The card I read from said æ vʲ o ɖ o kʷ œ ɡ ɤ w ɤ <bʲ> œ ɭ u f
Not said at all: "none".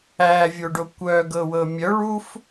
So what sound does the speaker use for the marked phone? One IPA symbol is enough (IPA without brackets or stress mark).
mʲ